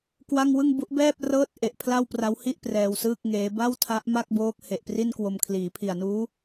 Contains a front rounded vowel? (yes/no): no